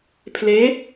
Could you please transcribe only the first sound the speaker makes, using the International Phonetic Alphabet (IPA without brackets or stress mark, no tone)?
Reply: pʰ